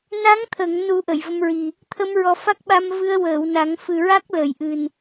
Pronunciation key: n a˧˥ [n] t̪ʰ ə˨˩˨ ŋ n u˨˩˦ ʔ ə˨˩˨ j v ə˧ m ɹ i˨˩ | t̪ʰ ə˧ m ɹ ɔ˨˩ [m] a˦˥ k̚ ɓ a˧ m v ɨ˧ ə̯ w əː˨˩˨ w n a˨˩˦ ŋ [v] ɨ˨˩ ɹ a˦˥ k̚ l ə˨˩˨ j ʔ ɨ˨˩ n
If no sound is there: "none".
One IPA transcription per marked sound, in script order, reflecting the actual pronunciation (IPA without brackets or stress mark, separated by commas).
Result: ŋ, f, f